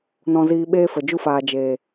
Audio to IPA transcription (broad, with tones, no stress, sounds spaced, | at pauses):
n ɔ̃˧ z iː˧ ɓ eː˦ f ə˨ d͡ʒ u˧ f aː˨ d͡ʒ eː˨